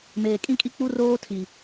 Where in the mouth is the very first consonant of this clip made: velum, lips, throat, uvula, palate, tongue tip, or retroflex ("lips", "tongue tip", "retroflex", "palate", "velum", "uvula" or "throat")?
lips